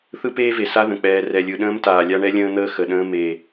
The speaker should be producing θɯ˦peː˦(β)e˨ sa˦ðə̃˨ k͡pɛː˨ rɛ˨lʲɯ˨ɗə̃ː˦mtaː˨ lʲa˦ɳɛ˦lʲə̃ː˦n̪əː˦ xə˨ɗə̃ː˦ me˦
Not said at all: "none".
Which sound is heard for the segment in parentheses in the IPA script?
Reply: v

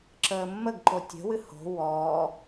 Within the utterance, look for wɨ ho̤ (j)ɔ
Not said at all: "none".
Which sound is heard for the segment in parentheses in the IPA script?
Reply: w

